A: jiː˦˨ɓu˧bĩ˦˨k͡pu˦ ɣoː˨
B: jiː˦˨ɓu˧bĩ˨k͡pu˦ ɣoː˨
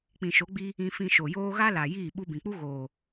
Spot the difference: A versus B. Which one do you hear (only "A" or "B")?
B